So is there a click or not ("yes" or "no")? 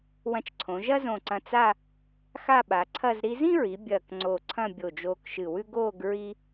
yes